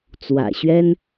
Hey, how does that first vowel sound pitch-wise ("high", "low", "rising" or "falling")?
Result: low